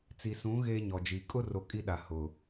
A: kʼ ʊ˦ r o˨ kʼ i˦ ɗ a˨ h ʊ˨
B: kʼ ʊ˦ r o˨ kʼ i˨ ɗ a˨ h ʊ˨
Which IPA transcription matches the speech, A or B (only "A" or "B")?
A